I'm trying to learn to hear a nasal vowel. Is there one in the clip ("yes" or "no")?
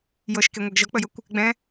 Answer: yes